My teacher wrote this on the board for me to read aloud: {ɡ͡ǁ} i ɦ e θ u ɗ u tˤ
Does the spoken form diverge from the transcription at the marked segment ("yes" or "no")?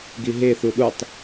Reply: yes